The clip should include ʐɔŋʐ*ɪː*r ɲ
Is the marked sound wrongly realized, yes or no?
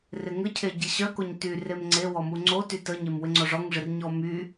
yes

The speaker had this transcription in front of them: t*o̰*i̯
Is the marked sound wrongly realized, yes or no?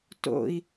no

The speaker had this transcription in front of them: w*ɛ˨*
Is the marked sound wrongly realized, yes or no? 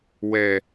no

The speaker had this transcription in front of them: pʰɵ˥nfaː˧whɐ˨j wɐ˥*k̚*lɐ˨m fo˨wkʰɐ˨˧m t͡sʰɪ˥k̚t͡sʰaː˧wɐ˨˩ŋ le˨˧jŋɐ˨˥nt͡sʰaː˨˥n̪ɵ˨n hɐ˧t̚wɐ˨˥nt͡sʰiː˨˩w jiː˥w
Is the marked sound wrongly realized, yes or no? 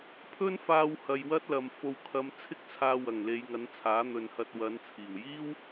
yes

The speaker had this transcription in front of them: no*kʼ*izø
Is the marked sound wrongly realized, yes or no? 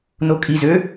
no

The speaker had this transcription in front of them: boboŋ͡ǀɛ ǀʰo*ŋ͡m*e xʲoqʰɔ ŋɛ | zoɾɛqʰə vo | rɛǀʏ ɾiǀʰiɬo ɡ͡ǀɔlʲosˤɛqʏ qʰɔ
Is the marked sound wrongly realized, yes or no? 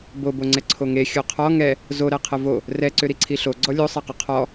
yes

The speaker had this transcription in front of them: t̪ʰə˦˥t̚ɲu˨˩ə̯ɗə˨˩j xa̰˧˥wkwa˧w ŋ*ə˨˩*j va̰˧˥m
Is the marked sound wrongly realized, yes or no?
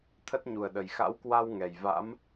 yes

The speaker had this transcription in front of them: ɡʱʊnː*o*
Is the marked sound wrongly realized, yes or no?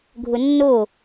no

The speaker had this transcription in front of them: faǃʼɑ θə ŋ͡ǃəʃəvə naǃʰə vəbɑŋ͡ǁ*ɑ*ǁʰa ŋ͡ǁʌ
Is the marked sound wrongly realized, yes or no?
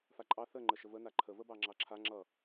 no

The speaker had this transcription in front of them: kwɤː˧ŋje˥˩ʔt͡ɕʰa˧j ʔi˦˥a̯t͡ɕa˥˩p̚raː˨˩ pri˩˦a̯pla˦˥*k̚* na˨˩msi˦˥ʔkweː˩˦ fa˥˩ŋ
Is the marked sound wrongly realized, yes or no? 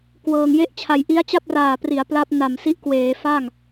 yes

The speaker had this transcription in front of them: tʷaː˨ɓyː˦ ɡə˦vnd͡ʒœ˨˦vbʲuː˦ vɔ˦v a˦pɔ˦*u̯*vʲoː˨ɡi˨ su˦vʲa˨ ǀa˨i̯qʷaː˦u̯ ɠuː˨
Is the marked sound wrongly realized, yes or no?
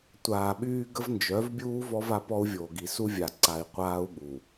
no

